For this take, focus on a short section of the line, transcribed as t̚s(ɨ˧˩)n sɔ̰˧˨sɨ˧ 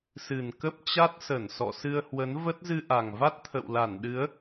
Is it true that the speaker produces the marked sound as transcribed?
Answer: no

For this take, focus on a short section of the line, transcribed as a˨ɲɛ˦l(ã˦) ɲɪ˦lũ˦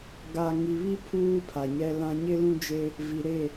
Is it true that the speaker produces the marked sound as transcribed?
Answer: yes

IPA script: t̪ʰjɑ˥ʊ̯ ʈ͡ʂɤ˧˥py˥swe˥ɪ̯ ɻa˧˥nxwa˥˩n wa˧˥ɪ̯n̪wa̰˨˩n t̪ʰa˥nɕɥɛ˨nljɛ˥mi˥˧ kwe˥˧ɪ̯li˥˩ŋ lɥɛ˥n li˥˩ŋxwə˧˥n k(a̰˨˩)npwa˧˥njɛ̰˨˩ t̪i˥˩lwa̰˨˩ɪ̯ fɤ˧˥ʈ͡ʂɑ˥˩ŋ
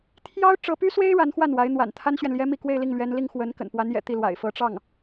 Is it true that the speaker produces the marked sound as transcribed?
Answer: no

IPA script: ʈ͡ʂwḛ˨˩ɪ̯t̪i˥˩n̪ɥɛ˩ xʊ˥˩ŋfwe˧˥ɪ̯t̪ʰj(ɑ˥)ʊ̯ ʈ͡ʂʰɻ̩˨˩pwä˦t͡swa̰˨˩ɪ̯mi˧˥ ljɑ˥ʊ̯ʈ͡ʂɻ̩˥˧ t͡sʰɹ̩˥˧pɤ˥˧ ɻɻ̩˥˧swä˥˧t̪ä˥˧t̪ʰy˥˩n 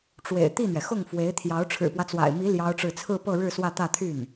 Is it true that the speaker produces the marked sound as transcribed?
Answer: no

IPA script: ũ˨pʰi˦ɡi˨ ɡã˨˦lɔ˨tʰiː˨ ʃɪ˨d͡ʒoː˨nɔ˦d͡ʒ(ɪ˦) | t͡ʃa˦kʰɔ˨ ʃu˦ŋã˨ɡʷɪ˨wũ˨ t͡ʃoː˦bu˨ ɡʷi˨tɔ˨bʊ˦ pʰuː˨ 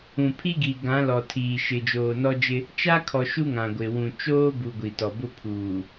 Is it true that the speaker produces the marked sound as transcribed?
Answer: yes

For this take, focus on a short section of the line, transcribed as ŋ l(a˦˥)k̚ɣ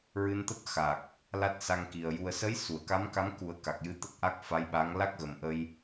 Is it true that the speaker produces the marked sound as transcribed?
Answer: yes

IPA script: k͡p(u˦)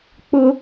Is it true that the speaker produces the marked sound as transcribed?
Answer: no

